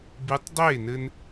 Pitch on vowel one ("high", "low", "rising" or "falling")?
rising